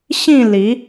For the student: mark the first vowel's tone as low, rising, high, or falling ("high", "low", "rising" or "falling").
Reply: falling